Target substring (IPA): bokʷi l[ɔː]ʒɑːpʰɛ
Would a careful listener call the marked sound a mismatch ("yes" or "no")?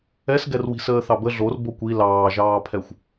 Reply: yes